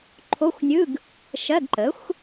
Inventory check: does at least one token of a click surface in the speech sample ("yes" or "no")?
yes